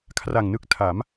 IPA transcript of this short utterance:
kʰra˨˩ŋnɯ˦˥k̚tʰa˩˦m

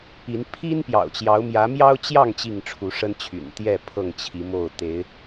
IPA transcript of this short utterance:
i˨˦n pʰi˦n pjɑ̰˨˩ʊ̯t͡ɕjɑ˨˦ʊ̯ mjä˨˦ mjɑ˦ʊ̯t͡ɕjɑ˥˨ŋ t͡ɕi˥˨ŋʈ͡ʂʰu˨˦ʂə˦nt͡ɕʰy̰˨˩n t̪jɛ˥˨ pʰɤ˥˨ŋt͡ɕʰi˨˦mo˥˨ʊ̯ t̪e˨˦ɪ̯

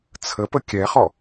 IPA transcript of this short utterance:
t͡sʰəpə kʲɛχɔ

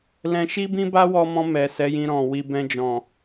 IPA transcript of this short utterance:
lɛ̃˧ʃi˦bĩ˦ba˦ wɔ˧mɔ̃˧ mɛ˨sɛ˨˦jĩ˧ ɾɔ̃˨ wi˧ bɛ̃˧d͡ʒɔ̃˨

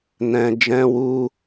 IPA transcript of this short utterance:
nɛ̃˧ d͡ʒɛ̃˧wu˧

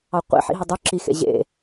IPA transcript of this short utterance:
ɑqʷḭ ħḭɦɵdˤø ǁixḛ ʑḛ

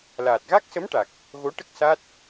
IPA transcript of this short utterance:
laː˨˩t̚ɣa˦˥k̚sə˧˥mʈa˨˩k̚ | ɣo˧˥ʈə˦˥k̚ sa˦˥t̚

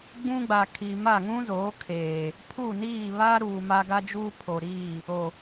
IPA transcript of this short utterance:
ɡ͡bũ˦ɡ͡ba˨ kʰi˨ ma˦˨ŋũ˦zoː˨˦kʰeː˨ | pʰu˦˨niː˦˨βaː˦ɾuː˨ ma˦ɡa˦d͡ʒuː˦ pʰo˨ɾiː˦˨ | o˨

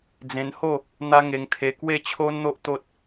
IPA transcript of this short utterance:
d͡zẽ˧nho˥˧ | n̪a˦ŋe˧ŋt̪ʰe˧ kwe˥˧t͡ɕʰo˦n n̪o˦ʔt̪o˦t̚

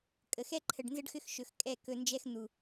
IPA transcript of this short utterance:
kʼə˨ xɛ˦ǃʰə˨ɖnzə˦ɖxʏ˦x ʃɵ˨xkʼɛ˦˨ kɵ˨nd͡ʒɛ˦x n̪u˨

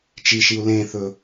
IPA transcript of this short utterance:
t͡ʃiʃiu̯ lẽθɵ

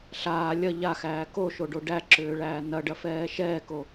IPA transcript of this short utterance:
ɬaː lʲɐ ʎaxæː koʃoɖo ɖæǁʏːɭæː nɐɖɐfɛː ʃɛːko

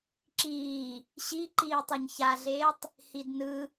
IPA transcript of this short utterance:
ǁiː | ɕiǃiː tˤoɲçaɮeːtˤ | hidnɯ

